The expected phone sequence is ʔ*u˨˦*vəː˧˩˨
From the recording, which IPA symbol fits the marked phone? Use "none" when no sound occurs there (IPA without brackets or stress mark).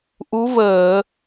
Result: u˨˦